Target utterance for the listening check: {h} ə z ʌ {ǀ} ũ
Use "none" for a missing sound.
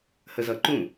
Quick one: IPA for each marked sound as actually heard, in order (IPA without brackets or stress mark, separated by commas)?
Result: h, ǃ